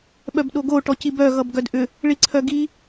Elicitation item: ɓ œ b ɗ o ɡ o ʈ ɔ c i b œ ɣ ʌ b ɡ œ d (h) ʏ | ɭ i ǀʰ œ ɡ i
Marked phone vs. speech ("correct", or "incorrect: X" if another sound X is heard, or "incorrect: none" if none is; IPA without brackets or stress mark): incorrect: ʔ